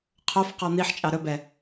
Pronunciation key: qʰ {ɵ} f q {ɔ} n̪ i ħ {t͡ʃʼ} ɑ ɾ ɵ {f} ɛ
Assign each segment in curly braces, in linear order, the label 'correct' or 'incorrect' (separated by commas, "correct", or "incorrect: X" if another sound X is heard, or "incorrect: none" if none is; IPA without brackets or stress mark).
incorrect: o, correct, correct, incorrect: b